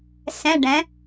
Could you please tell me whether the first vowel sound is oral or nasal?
nasal